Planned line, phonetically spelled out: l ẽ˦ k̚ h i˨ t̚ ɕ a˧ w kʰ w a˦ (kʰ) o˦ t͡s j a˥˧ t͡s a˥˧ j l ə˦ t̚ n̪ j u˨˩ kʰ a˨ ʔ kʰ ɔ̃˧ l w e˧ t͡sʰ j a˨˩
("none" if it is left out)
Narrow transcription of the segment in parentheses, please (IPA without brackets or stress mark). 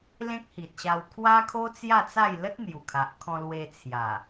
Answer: kʰ